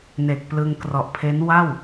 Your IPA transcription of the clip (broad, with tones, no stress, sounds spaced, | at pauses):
n e˨˩ k̚ p l ɯ˧ ŋ k r ɔ˨˩ ʔ pʰ e˦˥ n w a˥˩ w